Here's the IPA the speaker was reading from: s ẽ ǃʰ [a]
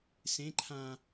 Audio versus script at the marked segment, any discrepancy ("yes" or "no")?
yes